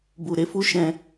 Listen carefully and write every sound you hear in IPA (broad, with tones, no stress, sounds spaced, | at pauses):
b u˨ ɾ e˨ f u˧ ʃ ɛ̃˨